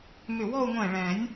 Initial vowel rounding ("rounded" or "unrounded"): rounded